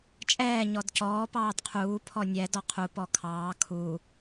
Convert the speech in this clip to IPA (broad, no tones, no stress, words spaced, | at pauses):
t͡ʃʼɛː ɲɔdcɔː pɑːdqʰuː pʰɔnʲɛ dɔqʰu pɔkʰɑː kʰu